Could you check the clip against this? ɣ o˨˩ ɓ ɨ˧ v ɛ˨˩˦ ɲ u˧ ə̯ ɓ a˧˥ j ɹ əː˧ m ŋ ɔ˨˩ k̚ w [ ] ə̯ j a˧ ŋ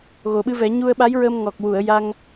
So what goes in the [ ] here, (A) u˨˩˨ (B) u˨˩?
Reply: A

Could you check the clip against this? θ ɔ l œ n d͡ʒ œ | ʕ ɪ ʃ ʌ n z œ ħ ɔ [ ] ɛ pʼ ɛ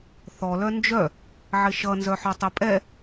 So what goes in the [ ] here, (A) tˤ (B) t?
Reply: A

